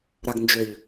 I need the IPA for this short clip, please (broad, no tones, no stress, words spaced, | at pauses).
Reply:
ɾaɡnd͡ʒøʎ